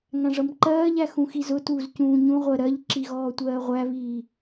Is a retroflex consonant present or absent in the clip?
present